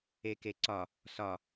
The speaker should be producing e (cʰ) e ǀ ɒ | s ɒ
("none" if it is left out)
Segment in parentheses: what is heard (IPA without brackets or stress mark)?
k